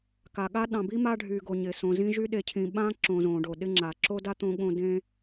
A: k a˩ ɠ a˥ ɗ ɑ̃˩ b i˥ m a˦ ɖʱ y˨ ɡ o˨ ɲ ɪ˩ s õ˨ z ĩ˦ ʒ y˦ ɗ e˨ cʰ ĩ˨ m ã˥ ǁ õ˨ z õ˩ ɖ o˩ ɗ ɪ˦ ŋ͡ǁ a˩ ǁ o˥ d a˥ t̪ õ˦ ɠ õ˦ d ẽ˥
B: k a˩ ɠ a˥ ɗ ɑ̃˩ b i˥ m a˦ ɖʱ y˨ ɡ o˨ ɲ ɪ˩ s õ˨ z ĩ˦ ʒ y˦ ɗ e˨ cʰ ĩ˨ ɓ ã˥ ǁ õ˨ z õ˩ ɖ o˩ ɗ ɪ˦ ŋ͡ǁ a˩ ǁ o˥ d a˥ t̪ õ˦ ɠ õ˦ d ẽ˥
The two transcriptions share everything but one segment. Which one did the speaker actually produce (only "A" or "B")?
B